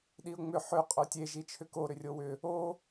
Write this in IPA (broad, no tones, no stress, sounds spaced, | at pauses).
ɗ i ʊ̯ ŋ͡m ʏ ħ ʏ qʼ o tʲ e ʒ i t͡ʃʰ ʏ k o ɾ ʏ rʲ o w ʏ | o